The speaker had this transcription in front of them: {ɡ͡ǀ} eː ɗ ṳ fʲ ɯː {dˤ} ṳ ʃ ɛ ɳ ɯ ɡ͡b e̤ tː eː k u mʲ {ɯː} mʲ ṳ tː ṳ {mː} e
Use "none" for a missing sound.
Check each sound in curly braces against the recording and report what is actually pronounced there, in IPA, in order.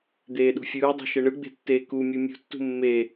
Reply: d̪, dˤ, ɯ, mː

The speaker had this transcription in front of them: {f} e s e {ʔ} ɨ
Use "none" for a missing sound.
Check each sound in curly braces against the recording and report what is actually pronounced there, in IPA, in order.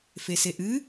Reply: f, ʔ

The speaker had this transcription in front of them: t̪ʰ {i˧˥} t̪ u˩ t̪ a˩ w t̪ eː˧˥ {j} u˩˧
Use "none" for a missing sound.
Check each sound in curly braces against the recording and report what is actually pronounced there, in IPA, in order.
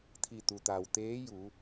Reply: i˧˩, j

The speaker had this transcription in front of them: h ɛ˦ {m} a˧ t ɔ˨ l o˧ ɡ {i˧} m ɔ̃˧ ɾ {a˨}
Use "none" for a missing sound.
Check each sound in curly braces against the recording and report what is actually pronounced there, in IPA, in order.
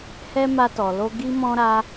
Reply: m, i˧, a˧

